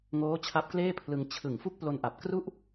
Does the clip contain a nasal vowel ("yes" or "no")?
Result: no